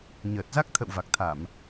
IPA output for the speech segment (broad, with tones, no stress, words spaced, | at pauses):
ɲəː˨˩t̚za˦˥k̚ t̪ʰə̰˧˨w va˨˩k̚t̪ʰa˧˩˨m